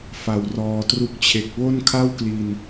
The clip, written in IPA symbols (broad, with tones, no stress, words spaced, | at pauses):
fa˨˩wrɔː˨˩tru˦˥k̚t͡ɕʰe˨˩k̚ wo˥˩nkʰa˥˩wkli˨˩n